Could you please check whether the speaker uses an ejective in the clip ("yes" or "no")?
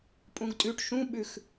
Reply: yes